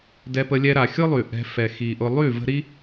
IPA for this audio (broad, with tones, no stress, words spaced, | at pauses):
dɛ˧pə˧ lʲɛ˧ɾa˨xʲʊ˦ lˠy˨ʔɛ̤˧fɛ˨ xi˨ʔʊ˧ lˠy˦˨ və̤˦ ɾi˦